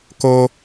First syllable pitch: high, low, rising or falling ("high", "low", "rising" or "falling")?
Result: high